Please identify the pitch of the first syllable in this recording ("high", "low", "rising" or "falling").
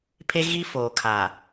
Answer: high